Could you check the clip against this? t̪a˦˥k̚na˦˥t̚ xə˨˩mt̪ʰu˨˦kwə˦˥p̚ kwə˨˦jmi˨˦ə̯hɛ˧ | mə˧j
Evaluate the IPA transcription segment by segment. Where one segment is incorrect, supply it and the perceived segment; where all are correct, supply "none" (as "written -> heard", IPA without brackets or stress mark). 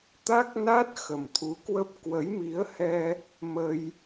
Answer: none